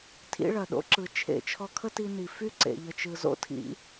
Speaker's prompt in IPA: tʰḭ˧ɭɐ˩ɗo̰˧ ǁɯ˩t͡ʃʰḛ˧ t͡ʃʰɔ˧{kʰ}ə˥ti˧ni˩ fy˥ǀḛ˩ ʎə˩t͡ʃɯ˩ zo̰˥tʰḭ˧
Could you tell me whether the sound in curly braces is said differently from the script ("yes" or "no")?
no